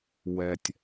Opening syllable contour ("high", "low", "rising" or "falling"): low